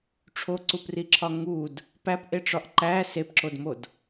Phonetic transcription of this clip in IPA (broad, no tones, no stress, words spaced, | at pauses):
ʈ͡ʂʰoǀupriǁʰɒ ŋud | pæpʔeʈ͡ʂɒʔ ǃæ sepǁodmod